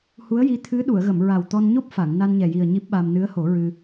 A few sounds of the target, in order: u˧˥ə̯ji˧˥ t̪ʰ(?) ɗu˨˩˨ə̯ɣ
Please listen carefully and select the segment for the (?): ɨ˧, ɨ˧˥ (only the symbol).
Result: ɨ˧˥